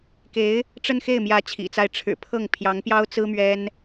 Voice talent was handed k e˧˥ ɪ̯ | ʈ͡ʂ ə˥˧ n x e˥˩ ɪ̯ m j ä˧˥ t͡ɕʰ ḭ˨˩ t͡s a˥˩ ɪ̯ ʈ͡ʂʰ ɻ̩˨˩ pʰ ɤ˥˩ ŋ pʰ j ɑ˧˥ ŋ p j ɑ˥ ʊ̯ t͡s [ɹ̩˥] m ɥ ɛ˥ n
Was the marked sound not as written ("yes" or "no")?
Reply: no